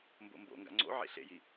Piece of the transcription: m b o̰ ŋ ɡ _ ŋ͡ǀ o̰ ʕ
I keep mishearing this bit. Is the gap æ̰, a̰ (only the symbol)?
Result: a̰